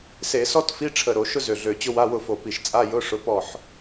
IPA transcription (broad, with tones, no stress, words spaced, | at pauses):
se˧˩˧sɔ˥tfi˧˥˧ ʈ͡ʂʰə˧˩ ɾo˧˩˧ʃʊ˥ zø˧˩ɮø˧˩t͡ɕʊ˥ wa˧˥˧wʊ˥˨fo˧˩pi˧˩ʃ t͡sʼa˧˥˧jʊ˧˥˧ ʂʊ˧˥˧pɔ˥˨ħ